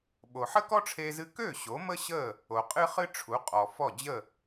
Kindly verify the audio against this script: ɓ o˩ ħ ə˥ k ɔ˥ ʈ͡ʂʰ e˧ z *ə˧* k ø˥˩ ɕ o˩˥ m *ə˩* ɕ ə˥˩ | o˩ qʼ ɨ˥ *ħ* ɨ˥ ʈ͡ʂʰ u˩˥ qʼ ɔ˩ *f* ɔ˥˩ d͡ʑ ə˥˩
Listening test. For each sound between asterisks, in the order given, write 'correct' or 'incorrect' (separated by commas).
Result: incorrect, incorrect, incorrect, correct